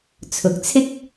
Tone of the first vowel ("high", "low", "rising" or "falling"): low